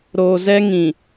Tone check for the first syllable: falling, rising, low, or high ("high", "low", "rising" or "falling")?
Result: low